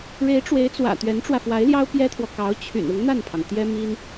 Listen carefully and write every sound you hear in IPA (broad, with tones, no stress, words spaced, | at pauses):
ɻe˧˥ɪ̯ʈ͡ʂwe˧˥ɪ̯t͡swä̰˨˩ t̪ɥɛ˧˥nʈ͡ʂwä˧fwa˧˥ɪ̯ljɑ˥ʊ̯ pjɛ˥t̪ʰwɔ˨ kɑ˧˥ʊ̯t͡ɕʰy̰˨˩n ʊ˧˥ŋn̪a˥˩npʰɑ˩ŋ t̪jɛ˥mi˥n